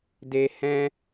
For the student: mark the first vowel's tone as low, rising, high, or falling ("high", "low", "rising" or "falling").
low